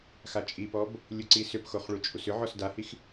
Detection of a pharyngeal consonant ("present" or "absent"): present